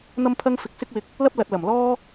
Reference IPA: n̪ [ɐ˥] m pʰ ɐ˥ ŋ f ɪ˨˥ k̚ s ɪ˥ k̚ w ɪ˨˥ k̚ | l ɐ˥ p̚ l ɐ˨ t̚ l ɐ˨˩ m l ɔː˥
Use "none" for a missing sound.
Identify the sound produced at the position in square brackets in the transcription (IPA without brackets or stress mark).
ɐ˥